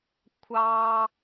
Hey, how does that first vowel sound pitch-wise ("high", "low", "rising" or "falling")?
high